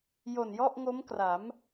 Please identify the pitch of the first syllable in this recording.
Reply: low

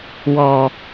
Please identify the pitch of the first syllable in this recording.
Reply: low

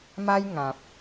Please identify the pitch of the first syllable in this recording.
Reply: high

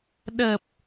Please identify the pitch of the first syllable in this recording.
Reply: low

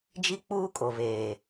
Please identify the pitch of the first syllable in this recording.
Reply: high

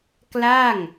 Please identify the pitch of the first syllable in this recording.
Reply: falling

